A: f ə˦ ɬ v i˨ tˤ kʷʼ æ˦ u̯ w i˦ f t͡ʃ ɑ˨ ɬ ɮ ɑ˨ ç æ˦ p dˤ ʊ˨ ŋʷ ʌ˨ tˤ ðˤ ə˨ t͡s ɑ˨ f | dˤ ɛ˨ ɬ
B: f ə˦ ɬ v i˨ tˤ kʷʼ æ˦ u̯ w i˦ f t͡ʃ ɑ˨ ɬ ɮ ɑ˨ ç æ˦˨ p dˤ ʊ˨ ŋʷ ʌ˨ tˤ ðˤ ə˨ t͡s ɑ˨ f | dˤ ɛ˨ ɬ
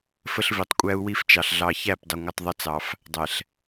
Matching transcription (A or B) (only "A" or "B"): B